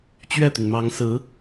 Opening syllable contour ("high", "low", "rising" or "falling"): falling